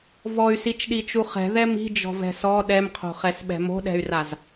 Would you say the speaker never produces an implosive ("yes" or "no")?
no